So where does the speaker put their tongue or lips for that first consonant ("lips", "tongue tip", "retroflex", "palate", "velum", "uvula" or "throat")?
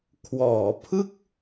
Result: velum